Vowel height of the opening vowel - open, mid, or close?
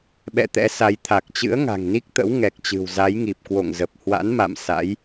mid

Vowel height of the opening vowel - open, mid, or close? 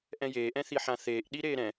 mid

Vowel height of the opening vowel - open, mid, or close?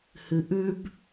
close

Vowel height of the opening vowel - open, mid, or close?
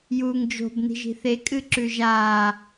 close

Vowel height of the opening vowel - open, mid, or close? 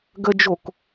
mid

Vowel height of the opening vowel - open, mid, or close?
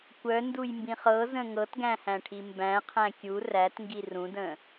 mid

